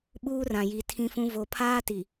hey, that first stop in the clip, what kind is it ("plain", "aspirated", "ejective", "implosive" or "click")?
implosive